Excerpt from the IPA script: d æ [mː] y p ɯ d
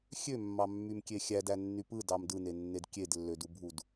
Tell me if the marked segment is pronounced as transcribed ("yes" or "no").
no